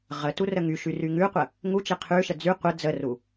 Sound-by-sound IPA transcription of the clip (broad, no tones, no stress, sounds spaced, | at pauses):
ʁ ə t u r ə ŋ y ʃ y r y ŋ ʉ qʷ ə | ŋ u t͡ʃ e qʰ ʉ ʃ ə d͡z y qʷ ə d͡z ə r u